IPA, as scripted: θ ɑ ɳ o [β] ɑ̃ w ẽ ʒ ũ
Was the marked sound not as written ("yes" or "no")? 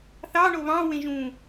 no